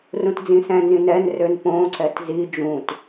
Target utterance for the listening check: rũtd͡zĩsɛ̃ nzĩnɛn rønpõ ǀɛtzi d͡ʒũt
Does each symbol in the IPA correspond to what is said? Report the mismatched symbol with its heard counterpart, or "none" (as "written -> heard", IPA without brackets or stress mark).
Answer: none